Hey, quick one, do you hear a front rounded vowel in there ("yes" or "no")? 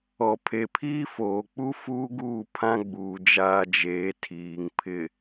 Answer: no